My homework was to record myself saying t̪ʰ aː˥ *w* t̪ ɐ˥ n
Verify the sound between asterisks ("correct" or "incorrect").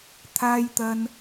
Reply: incorrect